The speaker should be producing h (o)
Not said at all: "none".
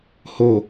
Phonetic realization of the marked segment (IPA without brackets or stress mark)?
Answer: o